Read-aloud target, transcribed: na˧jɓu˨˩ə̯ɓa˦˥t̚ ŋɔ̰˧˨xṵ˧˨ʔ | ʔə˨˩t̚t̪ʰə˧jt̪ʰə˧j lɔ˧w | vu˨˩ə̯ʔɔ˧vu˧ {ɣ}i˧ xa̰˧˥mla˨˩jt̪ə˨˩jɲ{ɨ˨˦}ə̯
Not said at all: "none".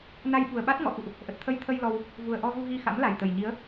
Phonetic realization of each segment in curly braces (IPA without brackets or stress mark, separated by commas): ɣ, i˨˦